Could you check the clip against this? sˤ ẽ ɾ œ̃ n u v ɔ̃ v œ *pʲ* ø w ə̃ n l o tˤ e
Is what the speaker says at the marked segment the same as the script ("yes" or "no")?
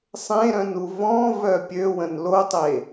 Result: yes